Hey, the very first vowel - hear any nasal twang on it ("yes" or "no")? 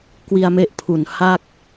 no